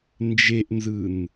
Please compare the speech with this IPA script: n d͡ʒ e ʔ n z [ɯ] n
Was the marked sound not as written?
no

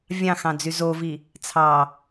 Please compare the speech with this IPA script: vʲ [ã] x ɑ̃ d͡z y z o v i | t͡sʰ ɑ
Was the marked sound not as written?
yes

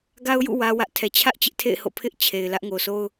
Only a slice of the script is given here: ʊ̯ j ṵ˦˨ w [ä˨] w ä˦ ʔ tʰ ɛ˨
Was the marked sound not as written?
yes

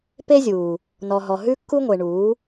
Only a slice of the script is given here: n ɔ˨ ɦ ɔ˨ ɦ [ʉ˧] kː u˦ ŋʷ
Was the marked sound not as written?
yes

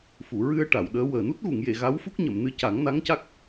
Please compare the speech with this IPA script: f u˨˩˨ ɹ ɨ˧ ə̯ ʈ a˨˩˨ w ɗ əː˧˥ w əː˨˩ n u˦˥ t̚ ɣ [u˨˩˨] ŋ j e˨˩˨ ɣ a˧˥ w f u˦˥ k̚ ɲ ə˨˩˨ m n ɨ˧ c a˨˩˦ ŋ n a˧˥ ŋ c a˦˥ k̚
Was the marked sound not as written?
no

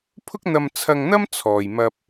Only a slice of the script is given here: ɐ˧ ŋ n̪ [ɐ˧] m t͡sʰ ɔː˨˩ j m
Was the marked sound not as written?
yes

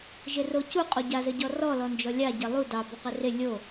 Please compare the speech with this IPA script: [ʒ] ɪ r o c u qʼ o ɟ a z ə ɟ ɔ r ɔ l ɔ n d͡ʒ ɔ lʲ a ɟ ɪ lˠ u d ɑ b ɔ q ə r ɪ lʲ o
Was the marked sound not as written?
no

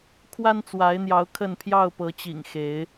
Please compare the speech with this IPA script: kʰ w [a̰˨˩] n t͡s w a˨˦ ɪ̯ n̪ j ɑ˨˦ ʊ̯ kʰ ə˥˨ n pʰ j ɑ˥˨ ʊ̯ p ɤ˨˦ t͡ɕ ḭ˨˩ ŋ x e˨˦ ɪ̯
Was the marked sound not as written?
yes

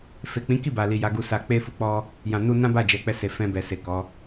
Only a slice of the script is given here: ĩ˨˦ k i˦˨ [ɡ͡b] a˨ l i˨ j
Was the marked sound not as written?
yes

